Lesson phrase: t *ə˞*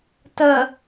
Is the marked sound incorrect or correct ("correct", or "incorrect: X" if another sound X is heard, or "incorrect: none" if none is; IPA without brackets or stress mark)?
incorrect: ɐ